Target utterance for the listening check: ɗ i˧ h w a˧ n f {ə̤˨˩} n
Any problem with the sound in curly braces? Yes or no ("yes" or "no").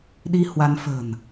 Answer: no